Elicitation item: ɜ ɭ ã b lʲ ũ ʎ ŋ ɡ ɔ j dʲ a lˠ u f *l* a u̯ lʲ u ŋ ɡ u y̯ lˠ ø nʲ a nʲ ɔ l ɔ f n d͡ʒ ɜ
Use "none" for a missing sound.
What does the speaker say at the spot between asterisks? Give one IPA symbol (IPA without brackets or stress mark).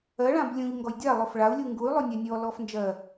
ɭ